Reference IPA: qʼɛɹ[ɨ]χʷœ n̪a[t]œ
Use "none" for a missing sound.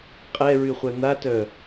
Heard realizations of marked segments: y, t

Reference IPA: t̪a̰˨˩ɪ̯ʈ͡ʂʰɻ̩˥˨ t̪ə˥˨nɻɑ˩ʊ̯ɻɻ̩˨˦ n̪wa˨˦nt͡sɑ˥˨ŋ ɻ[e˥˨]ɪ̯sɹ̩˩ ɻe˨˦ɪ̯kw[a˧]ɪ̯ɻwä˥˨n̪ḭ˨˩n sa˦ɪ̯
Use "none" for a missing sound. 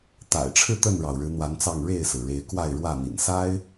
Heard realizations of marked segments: e˥˨, a˥˨

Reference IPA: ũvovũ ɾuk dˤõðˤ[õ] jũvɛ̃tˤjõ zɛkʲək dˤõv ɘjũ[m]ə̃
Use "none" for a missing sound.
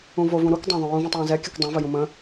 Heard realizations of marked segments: ũ, m

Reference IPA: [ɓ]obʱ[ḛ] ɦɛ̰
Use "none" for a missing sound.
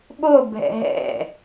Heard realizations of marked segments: ɓ, ɛ̰

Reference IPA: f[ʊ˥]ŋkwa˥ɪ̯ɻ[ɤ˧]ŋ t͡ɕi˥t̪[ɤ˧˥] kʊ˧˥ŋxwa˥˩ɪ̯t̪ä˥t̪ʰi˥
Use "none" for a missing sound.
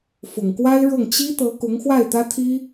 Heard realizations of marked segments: ʊ˨˩, ɤ˥˩, ɤ˧˥

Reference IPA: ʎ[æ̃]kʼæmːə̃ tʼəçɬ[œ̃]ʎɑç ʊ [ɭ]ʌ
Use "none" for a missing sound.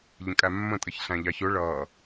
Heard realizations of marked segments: ə̃, æ̃, ɭ

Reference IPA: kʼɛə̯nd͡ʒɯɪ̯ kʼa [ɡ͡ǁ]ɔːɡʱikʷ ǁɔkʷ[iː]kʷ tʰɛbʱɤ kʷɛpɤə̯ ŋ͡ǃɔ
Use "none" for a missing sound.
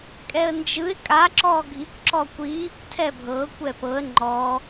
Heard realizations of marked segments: ǁ, iː

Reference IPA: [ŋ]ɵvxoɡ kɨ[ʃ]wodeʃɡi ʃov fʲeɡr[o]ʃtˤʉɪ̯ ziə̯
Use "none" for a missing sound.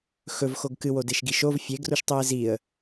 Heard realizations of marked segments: x, none, u

